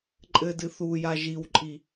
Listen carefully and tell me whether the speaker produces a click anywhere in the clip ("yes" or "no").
yes